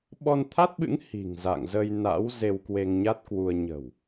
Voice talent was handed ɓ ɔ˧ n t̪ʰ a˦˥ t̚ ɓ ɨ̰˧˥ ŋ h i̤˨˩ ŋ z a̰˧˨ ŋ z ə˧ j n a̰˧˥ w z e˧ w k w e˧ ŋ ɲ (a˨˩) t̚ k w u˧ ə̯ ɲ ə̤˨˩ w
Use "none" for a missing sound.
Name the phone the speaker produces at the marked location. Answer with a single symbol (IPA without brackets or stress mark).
a˦˥